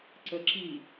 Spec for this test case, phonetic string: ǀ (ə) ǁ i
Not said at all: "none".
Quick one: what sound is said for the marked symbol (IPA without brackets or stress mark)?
ə